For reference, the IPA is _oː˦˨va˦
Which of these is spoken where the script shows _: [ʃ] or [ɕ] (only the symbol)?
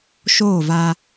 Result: ʃ